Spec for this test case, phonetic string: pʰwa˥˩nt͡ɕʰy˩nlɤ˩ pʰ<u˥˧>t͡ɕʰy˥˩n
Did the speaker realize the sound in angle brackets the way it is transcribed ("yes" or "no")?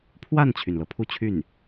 yes